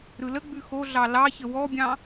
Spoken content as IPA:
ɾ ɯ l ə ɡ͡b ʉ x o ɮ ɑ l ɑ ç ə w ɔ bʲ ɑ̃

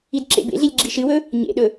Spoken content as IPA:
i d ǁ ḛ b ḛ ɮ i lʲ ɡ͡ǁ i ʃ ɨ w ɵ | ɲ ḛ ɗ ɵ

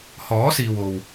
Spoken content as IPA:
h ɔː˨˥ s iː˨ w o˨ w

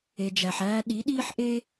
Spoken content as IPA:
e˨ d͡ʒ æ˨ ħ æː˧ ɗ i˨˦ ɗ iː˦ ħ ʔ e˦

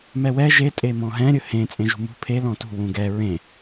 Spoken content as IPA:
m ɛ w ɛ ʒ e tʼ e m ɔ̃ ɦ ɛ̃ ɾʲ ɵ h ẽ t͡sʼ ẽ ʒ ṳ m ṳ pʰ e l ɔ̃ t ṳ w ũ ɡ ɛ ɹ ẽ

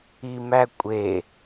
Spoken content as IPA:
i m æ kʷʼ e

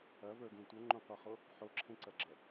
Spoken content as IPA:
ɐ v ə˞ ɡ ẽ tʷ ʌ ŋ͡ǃ õ qʷ ʌ χ o | ħ o ǁʰ ẽ ǀ ɐ ɡ͡ǁ ʌ

